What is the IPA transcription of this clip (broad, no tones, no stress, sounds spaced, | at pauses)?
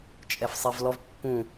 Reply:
t͡ʃʼ ɛ f sˤ e v l ɔ v pː ũ